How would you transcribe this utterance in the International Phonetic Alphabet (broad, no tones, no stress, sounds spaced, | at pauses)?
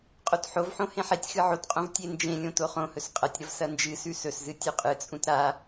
qʼ o t ħ o v ħ õ h ẽ ħ e tʲ x ɨ ʕ o t qʼ õ v tʲ e n d͡ʒ ẽ lʲ õ t o χ õ h ɵ s qʼ ɐ tʲ ɾ ɐ v s ɐ n d͡ʒ ɨ s ʉ s ɵ s z ɨ tʲ ʉ qʼ ɨ t͡sʼ ũ t ɾ a